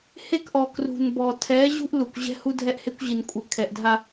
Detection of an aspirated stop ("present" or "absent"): present